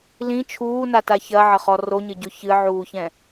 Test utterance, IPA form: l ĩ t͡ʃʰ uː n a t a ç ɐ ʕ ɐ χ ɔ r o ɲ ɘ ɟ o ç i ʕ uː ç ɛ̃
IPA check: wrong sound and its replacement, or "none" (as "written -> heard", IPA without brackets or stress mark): i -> ɨ